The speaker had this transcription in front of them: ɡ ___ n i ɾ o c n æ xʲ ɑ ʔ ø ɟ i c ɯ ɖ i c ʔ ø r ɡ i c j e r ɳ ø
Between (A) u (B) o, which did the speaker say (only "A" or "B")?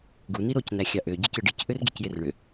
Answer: A